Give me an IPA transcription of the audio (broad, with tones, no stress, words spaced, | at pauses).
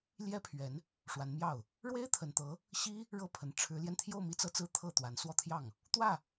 ljɛ˥pʰɥɛ˧˥n | ʂwa˧˥nmjɑ˥˩ʊ̯ | ɻwe˥ɪ̯t̪ʰə˨˩nt̪ɤ˧˥ | ɕi˥ | ɻɤ˥˩pʰə˨˩n ʈ͡ʂʰɻ̩˧˥ljɛ˧nt̪ʰjo˥˧ʊ̯ mi˥˧t͡sɤ˥˧t͡sɹ̩˥˧ t̪ʰɤ˥˩t̪wa˧˥n swɔ˥˧t̪ʰjɑ˥˩ŋ | t̪wä˥˩